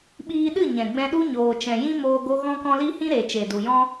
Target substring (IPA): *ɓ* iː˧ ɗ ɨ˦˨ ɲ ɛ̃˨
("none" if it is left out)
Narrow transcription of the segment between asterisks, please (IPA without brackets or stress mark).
ɓ